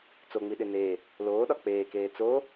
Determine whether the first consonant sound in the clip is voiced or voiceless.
voiceless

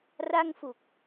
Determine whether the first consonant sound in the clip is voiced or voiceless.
voiced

